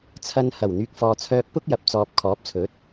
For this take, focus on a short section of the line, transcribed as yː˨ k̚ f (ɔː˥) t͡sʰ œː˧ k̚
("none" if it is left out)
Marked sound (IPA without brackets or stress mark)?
ɔː˨